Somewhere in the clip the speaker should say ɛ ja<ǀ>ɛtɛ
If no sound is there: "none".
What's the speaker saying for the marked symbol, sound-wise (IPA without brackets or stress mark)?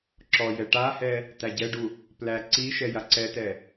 ǀ